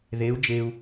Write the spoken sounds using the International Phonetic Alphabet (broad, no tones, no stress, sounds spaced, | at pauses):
ð e u̯ d͡ʒ e u̯